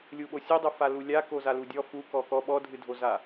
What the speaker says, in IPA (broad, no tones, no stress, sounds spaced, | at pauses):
lʲ u ɓ o sʲ u dˤ u f a l u lʲ a k o z a l u dʲ ɔ f u k ɔ k ɔ ɓ ɔ dʱ ɨ dʱ o z a